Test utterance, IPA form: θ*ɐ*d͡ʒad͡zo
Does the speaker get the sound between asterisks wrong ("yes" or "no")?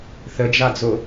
yes